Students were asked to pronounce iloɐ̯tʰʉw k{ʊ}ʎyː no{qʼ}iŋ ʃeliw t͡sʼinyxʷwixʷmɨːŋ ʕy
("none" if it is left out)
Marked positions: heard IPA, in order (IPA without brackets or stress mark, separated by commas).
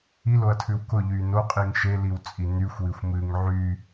ʊ, qʼ